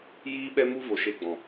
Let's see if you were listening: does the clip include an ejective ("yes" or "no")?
no